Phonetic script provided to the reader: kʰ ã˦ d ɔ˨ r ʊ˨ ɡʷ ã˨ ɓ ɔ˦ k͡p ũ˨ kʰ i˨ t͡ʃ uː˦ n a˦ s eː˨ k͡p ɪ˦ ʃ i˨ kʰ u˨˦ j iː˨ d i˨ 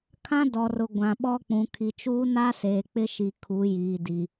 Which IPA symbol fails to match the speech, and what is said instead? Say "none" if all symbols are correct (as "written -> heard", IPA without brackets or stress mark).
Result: none